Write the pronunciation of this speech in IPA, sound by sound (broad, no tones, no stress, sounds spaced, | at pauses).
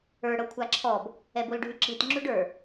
ə˞ ɽ ɤ kʷʰ a ǁʰ ɔ b | ɛ b o l ɖʱ y ǁ i t ŋ͡ǁ y ɖ ə˞